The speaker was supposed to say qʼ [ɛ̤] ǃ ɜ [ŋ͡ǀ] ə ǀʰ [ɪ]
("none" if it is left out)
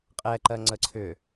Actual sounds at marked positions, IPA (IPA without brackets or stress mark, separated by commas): ɛ, ŋ͡ǀ, ʏ